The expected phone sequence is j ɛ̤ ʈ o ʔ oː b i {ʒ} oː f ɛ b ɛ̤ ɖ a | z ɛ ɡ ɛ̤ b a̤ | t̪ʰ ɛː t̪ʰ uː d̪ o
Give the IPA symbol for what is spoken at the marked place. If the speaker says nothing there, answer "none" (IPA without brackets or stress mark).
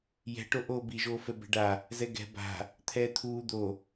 ʒ